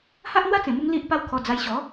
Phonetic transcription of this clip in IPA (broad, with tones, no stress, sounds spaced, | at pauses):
h a˦ ʔ n̪ w a˦ t͡s ẽ˨˩ m u˧ ŋ l i˦ ʔ p a˦ w kʰ ɔ˧ d͡z a˧ j ɕ ɔ˨˦